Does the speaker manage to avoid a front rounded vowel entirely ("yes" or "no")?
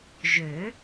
no